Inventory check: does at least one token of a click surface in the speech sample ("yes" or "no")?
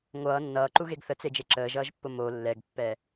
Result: yes